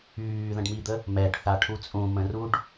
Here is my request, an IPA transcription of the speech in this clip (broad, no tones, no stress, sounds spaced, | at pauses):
yː ð ə̃ ɖ m i d̪ ə | m ɛ ɖ θ a ʈʰ u t͡sʼ ũ m ə̃ r u ɖ